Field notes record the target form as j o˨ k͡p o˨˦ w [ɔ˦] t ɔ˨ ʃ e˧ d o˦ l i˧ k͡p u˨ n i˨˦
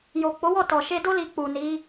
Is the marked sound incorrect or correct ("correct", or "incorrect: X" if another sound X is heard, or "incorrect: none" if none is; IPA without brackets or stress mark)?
incorrect: ɔ˦˨